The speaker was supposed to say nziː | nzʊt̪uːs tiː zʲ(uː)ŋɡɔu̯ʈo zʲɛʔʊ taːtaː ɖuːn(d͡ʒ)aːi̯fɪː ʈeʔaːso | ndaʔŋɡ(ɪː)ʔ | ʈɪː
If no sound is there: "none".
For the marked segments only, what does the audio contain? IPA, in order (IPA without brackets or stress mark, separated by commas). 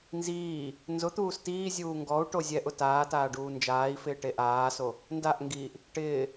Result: uː, d͡ʒ, iː